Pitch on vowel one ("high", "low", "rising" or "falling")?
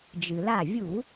low